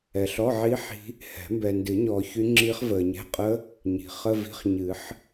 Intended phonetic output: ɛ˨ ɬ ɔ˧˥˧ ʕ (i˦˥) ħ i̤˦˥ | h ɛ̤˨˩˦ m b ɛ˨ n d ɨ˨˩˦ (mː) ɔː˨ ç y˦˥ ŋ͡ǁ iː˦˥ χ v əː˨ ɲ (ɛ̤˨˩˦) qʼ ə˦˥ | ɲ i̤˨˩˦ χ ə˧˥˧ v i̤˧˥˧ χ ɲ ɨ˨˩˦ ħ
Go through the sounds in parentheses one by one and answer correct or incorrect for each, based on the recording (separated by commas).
correct, incorrect, incorrect